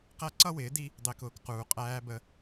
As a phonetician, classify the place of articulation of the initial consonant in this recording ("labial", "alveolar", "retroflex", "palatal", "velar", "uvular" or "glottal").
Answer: uvular